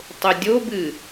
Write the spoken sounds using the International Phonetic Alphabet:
tˤ ʊ dʲ o b ɨ

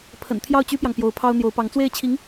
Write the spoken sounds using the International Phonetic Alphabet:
pʰ ə̰˨˩ n t̪ʰ j ɑ˥˩ ʊ̯ t͡ɕ y˥ p j ɑ˨ ŋ p j o˧˥ ʊ̯ pʰ ɑ˥ ʊ̯ n̪ j o˧˥ ʊ̯ p ɑ˧˥ ŋ t͡s w e˥˩ ɪ̯ t͡ɕʰ i˧˥ ŋ

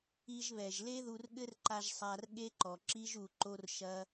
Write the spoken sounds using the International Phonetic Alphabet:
i˧ ʒ β ɛ˨ ʒ l e˦ ð u˧ r ɠ ɘ˦ r ǃ a˧ ʒ sˤ a˧ r ɠ e˦ ǃ ɔ˨ ǁ i˦ ʒ u˧ ǃ o˦ r ʃ ɐ˦

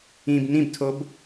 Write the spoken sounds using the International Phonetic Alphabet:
ĩ b n ĩ b tʰ o b

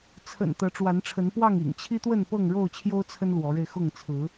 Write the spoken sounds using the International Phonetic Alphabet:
t͡sʰ ə̰˨˩ n t̪ ɤ˨˦ ʈ͡ʂ w a˨˦ n ʈ͡ʂʰ ə˨˦ n p w ɑ˥˨ ŋ ḭ˨˩ ŋ t͡ɕʰ i˦ t̪ w ə˥˨ n p ɤ˥˨ ŋ ɻ o˥˨ ʊ̯ t͡ɕʰ j o˦ ʊ̯ t͡sʰ ə˦ n l w ɔ˨˦ ɻ e˧ ɪ̯ x ʊ˥˨ ŋ t͡sʰ ɹ̩˨˦

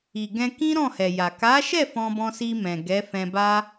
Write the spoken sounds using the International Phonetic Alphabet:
i˨ ɡ ɛ̃˧ k ĩ˦ ɾ ɔ̃˦˨ h ɛ˨ j a˨ k a˨˦ ʃ ɛ˦˨ f ɔ̃˧ b ɔ̃˧ s i˧ m ɛ̃˨ ɡ ɛ˨˦ f ɛ̃˧ b a˦

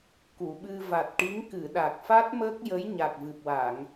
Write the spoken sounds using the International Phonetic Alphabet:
k u˨˩˨ ɓ ɨ˧ v a˨˩ t̚ ʈ i˧˥ ŋ k ɨ˨˩˨ ɗ a˨˩ k̚ f a˦˥ t̚ m əː˦˥ k̚ j ə˧˥ j ɲ a˨˩ k̚ v ɨ˨˩ p̚ w a˨˩˨ ŋ

